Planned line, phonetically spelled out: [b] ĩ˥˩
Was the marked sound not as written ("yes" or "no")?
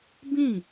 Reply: no